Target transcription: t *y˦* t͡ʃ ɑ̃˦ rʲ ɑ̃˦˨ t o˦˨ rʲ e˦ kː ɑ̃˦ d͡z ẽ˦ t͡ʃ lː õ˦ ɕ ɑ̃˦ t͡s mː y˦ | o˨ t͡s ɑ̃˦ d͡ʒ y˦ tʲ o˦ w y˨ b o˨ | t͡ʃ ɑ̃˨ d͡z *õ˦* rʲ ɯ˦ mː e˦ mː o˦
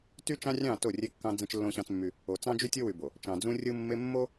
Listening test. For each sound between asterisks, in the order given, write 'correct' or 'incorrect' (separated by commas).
correct, incorrect